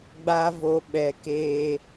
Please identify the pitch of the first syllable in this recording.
high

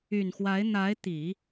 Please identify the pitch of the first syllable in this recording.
low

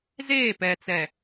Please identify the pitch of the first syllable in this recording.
falling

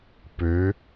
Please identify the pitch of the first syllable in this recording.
rising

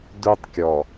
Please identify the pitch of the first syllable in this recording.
high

